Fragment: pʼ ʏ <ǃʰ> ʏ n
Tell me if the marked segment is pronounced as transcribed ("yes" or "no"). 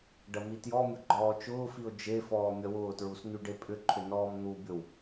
yes